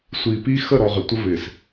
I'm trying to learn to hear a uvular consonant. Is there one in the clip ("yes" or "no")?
yes